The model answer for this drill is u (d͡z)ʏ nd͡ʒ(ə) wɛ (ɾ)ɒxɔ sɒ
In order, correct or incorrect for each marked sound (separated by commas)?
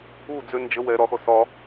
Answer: correct, correct, correct